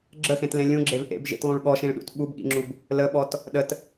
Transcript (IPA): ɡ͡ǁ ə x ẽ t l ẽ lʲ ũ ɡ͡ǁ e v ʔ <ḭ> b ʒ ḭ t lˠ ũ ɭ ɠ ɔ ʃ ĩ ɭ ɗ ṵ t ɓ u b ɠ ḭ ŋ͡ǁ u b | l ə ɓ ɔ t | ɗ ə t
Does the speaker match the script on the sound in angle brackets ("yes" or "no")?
no